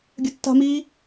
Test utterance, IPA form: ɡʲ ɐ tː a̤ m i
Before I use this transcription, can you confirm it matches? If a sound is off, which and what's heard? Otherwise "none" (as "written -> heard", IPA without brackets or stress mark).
none